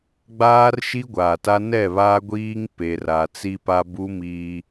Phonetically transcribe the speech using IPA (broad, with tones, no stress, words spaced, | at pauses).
ɡ͡baː˦rʃi˦ɡʷaː˨ta˦ nɛ˦˨βa˦ɡʷiː˦ŋ pe˨ra˨ t͡si˦pa˦ bu˦miː˦